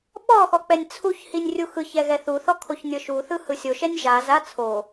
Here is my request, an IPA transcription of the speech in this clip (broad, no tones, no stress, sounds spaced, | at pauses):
ɓ ɔ x ɔ k͡p ɛ nʲ t͡sʰ u ç h i nʲ rʲ u x ɯ ç ɛ ɣ ɛ θ u θ ɔ kʰ o ç nʲ ɤ ʃ u θ ɯ h ɯ sʲ o ʃ ɛ nʲ ʒ a z a t͡sʰ o